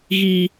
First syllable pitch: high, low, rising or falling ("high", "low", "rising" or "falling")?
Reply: high